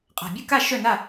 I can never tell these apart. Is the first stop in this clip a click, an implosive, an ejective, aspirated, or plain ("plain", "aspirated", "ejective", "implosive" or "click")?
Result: ejective